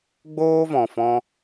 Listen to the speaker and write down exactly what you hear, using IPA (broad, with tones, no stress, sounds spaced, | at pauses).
ɡ͡b oː˦ v ɔ̃˨ f ɔ̃˧